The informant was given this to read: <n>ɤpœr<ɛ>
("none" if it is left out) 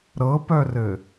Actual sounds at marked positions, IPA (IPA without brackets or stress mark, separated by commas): ɾ, ɘ